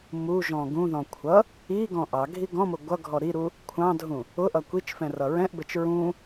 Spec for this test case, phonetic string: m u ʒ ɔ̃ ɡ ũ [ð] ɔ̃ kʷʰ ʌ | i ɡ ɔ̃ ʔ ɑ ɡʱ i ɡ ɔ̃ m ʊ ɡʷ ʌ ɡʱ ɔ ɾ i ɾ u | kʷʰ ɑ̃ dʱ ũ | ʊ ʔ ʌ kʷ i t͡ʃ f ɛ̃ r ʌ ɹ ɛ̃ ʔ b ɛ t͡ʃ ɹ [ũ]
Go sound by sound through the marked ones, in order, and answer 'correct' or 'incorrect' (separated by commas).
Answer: correct, correct